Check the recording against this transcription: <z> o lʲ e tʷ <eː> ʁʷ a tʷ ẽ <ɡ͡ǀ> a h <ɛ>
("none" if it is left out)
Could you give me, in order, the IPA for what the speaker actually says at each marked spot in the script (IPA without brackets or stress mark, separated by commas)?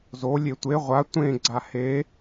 z, e, ɡ͡ǀ, e